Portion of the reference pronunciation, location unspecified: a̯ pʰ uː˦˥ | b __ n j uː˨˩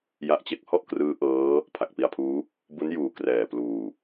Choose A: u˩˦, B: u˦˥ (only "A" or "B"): B